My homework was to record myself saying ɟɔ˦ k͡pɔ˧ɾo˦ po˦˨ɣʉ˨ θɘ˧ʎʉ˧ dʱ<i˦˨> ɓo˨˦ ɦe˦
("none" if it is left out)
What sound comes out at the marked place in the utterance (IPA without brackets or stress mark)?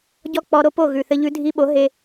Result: i˧